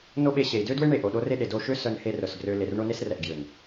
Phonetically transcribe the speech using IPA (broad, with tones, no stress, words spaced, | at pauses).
no˦ɓe˧ɕe˨i̯ dø˦dwe˦ɳe˨ʔo˨ ɗo˦re˦ɗe˨ do˧ ʃø˦ sœ˧nhe˧r œ˨sɡrø˧ le˨rɳo˦ne˦srɛ˨ʔ ɡjø˨n